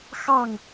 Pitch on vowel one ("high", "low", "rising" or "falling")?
falling